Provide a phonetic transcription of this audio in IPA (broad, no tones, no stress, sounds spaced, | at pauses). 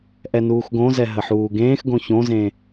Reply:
ʔ ɛ n uː x ɡ õ z ɛ ɦ ə ħ uː ɡ ẽː x ɡ õ ç õ z ẽ